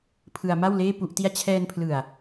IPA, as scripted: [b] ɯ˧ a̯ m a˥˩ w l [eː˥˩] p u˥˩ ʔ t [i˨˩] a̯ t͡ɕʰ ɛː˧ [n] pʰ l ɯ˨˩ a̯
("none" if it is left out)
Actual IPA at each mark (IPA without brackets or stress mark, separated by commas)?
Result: pʰ, eː˥˩, i˥˩, n